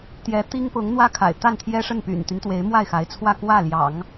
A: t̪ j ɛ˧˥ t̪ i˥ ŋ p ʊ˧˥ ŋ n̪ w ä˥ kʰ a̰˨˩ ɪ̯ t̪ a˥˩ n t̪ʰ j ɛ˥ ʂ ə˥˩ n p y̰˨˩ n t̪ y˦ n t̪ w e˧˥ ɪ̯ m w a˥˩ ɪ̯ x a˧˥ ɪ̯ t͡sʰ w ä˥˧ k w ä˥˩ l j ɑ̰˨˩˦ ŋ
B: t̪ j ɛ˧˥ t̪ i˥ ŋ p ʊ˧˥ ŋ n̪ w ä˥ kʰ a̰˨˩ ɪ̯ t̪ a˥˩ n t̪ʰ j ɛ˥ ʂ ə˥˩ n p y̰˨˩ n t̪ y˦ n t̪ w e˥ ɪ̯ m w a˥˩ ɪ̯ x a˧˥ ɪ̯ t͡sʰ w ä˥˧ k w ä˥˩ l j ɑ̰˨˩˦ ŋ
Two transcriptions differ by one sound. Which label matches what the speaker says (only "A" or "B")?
A